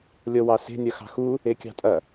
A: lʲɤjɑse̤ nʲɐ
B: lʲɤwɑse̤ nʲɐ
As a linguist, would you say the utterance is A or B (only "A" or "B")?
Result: B